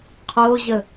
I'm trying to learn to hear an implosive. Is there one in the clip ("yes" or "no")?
no